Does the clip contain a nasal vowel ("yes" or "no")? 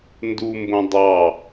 yes